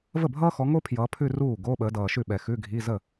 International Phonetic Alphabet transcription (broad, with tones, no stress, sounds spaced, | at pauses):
v ə˥˩ bʱ ʌː˥ x ɔ˨˦ ŋ o˥ pʰ j ʌː˨˦ pʰ ʉ˥˧ r uː˥˩ ɡ o˧˥˧ ɓ əː˨˦ d ʌː˨ ʃ ʉ˥˩ ɓ ɛ˨ x ʉ˧˥˧ ɡʱ i˧˥˧ z ə˥˩